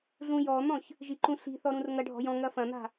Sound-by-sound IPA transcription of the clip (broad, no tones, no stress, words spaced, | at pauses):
ɮũjɔn̪ɔ̃ç | ʒiǃũɬi̤θɔ ɾũrŋɐɖʱɔ̤ jɔ̃ŋɐ fɐ̃n̪a̤